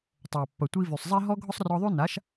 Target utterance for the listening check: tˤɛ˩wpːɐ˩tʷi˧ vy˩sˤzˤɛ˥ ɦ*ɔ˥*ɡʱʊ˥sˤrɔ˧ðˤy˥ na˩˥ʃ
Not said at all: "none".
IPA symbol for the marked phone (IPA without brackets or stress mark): ɔ˥